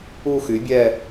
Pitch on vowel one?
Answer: falling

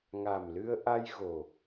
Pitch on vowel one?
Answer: low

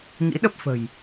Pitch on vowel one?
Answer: rising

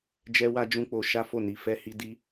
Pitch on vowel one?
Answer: high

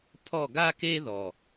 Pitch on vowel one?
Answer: falling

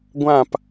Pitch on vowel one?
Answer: falling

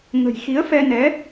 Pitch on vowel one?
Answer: low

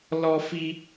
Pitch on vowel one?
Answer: high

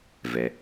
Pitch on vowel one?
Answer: low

